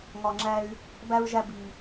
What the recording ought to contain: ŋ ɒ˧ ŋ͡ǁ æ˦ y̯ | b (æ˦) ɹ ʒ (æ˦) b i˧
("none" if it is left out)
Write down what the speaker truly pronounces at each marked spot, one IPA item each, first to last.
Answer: æ˦, æ˦

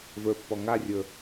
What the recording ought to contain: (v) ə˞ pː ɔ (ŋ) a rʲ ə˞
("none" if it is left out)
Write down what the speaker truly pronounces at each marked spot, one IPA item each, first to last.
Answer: v, ŋ

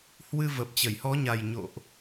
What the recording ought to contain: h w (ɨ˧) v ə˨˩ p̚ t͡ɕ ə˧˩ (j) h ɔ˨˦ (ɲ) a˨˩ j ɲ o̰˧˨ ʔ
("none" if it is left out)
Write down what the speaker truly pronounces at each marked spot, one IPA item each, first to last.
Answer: ɨ˧, j, ɲ

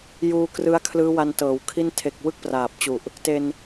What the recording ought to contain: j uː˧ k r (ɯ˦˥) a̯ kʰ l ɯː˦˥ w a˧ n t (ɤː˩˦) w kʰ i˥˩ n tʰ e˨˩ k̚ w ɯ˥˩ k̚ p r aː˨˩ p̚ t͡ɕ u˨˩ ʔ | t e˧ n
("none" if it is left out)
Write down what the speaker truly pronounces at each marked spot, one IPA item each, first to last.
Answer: ɯ˦˥, ɤː˩˦

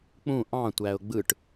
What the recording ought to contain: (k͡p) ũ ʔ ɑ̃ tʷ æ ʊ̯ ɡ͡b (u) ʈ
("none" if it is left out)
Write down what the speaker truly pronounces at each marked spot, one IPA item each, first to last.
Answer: k͡p, ɯ

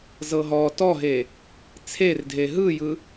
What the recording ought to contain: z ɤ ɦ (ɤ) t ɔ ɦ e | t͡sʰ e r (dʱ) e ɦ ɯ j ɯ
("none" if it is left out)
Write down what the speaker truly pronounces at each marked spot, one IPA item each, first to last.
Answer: ɔ, dʱ

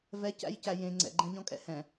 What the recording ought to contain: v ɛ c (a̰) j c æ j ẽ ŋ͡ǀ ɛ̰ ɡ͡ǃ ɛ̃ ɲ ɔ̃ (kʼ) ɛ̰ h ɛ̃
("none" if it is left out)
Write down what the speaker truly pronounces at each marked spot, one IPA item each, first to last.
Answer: æ̰, kʼ

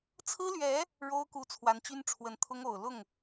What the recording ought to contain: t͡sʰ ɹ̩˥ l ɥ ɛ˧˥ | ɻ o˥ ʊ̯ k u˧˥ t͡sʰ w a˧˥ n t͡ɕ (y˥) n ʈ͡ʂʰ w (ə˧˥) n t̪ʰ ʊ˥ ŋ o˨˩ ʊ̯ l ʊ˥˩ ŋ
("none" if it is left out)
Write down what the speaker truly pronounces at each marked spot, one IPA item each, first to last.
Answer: y˥, ə˧˥

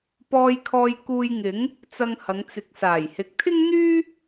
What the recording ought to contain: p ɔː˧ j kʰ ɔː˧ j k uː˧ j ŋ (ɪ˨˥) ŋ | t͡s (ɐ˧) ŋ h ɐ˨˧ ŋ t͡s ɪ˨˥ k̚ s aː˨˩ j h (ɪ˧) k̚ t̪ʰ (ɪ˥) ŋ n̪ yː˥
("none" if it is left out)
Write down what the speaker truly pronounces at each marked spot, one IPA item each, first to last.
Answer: ɪ˨˥, ɐ˧, ɪ˨, ɪ˥

